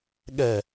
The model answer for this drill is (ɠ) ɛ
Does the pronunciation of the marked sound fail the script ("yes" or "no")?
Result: no